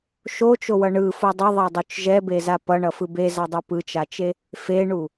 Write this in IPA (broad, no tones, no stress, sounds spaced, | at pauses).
ʃ o t͡ʃ o w ʌ ɳ ɯ f o dˤ ʌ ðˤ e dˤ u t͡ʃ ʒ ɛ b e z a p ʌ ɳ ʌ f ɯ b e z a dˤ u p ɯ t͡ʃ a t͡ʃ e | f e ɳ u